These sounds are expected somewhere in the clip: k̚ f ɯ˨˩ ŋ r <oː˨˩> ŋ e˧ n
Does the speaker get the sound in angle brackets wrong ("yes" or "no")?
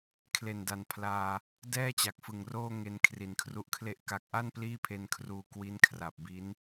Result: yes